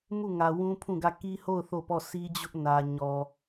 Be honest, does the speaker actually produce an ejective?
no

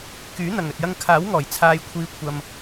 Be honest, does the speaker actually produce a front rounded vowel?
yes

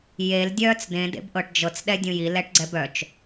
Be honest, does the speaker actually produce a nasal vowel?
yes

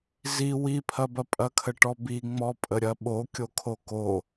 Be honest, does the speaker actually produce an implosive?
yes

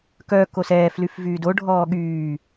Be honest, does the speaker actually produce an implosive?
yes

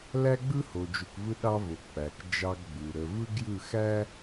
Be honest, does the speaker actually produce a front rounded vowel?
no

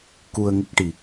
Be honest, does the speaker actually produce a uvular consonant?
no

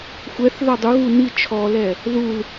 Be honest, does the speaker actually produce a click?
no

